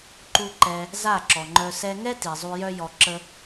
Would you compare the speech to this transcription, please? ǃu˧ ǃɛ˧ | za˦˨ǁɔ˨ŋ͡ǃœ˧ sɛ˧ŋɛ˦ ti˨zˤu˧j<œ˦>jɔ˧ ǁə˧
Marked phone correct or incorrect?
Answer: correct